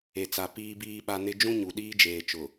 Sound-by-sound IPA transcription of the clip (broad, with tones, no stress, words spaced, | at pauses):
e˨t͡sa˨ piː˨biː˨ɓa˨ nɪ˦ d͡ʒũ˦ɲu˨ ɗiː˦d͡ʒeː˨ t͡ʃʊ˨